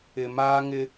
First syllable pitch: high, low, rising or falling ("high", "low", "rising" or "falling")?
low